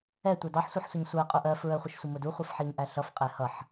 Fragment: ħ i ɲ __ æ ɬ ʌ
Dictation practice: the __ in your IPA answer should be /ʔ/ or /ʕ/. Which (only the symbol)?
ʔ